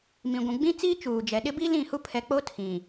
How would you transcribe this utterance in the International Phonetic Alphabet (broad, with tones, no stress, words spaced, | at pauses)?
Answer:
mĩ˨ɡʷũ˨ ɡ͡bĩ˦t͡siː˦ t͡ʃuː˨d͡ʒɛ˨ ɗɪ˦bi˦lĩ˦˨hu˦ pʰɛ˨k͡po˦ tʰĩ˨